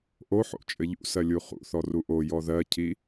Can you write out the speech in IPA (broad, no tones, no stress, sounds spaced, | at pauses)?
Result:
ʔ o ħ o̰ t͡ʃʼ ɘ ʎ ṵ s ɜ lʲ u χ ṵ θ ɔ r u ʔ o j ɔ ð ɜ cʰ i